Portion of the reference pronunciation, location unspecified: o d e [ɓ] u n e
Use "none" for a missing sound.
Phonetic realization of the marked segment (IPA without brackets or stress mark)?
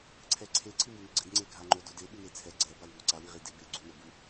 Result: ɓ